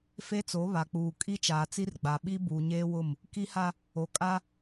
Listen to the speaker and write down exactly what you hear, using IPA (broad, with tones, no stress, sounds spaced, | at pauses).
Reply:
f e˦ t͡s o˨˦ β a˨ k͡p uː˨ kʼ i˦ t͡ʃ aː˨ t͡s i˦ r ɡ͡b a˨ ɓ i˦ b uː˨ ɲ eː˦ w ʊ˦˨ m | k i˦ h a˦ | o˨ kʼ a˦